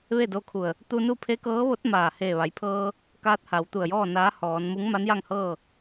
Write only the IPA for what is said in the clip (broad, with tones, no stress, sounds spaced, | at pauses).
ʋ e˥˨ d o˧ kʰ u˧˩ ə̯ | t̪ u˧ n u˥˨ pʰ e˧˥ k ɤː˧˥ ʋ o˧˥ t̚ m aː˧˩ h eː˧˩ ʋ a˩˧ j pʰ ɤː˧ | k aː˧ t̚ h a˩˧ w t̪ u˧˩ ə̯ j ɔː˥˨ n aː˧˥ h ɔː˩˧ n m u˧˥ ŋ m a˧˥ n j a˥˨ ŋ h ɤː˥˨